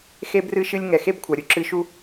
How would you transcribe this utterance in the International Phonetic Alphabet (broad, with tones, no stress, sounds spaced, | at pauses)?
x e˧ b r ɨ˧ ʃ ɨ˧ lʲ ŋ ɛ˩ x e˥ b kʷʰ a˩ ɾʲ u˥ ǁ ɨ˧ ʃ u˥